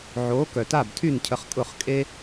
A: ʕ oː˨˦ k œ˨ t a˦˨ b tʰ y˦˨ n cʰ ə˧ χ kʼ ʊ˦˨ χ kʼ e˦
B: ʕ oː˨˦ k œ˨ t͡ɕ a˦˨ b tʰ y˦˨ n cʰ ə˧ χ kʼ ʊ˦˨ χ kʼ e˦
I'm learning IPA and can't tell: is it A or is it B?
A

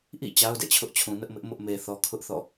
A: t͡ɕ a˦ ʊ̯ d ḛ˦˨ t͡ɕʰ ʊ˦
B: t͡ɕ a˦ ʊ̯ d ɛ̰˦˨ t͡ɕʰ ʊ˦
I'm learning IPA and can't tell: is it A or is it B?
B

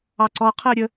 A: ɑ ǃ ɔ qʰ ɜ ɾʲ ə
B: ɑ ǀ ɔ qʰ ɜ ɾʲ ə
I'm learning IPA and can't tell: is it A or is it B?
B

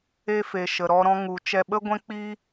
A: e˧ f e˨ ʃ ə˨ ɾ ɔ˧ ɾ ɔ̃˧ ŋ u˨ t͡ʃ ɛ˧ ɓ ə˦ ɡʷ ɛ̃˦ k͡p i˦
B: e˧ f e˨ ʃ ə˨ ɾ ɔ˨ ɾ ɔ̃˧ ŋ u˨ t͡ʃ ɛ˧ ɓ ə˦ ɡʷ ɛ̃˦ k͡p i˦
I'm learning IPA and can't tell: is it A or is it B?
A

